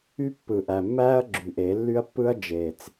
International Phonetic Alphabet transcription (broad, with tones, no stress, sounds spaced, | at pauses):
y˦˥ pː ɯ˨˩ ʔ æ˨˩ mː æː˦˥ ɐ̯ ɡ͡ǁ y˨˩ ʔ e˨˩˦ lː y˦˥ ɐ̯ pː ɯ˦˥ ɐ̯ d͡ʒ e˨˩ t͡s